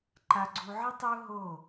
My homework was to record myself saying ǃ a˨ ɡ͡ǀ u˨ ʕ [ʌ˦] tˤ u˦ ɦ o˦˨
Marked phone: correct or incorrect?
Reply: correct